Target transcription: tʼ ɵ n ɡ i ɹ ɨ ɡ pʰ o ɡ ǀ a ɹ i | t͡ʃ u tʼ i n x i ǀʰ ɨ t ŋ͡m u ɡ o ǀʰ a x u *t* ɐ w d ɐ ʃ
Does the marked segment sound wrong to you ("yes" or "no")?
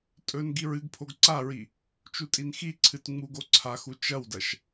yes